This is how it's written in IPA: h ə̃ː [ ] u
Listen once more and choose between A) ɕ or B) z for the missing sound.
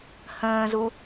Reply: B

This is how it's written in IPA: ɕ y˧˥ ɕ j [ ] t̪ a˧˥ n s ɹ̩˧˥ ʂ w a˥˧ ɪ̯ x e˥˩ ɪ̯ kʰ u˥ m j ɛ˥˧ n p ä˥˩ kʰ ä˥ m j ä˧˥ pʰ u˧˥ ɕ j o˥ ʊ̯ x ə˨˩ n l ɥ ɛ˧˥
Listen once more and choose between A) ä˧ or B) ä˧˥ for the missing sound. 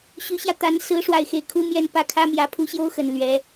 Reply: A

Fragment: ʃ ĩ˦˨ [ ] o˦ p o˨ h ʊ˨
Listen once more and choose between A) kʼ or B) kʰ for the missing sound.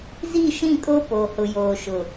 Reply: A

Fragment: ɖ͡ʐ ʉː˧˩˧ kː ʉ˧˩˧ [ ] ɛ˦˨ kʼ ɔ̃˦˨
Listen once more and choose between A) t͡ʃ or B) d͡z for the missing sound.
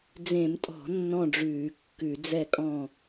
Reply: B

